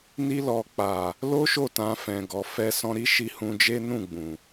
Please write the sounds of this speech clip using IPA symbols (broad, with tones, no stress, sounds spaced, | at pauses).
n i˧ l ɔ˨ k͡p a˨ | l o˦ ʃ o˦˨ t ã˧ f ɛ̃˨ ɡ ɔ˨ f ɛ˧ s ɔ̃˧ ɾ i˦ ʃ i˧ h ũ˧ d͡ʒ e˦ n ũ˦˨ ɡ͡b ũ˨